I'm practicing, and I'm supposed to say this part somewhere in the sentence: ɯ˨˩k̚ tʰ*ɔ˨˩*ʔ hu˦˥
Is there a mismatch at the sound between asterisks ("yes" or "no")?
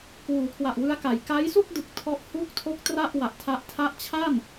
yes